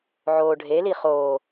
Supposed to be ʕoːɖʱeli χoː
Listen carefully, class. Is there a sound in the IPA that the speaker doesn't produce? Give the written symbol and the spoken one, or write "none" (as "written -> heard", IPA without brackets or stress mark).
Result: none